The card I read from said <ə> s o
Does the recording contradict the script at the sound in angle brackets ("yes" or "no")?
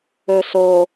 yes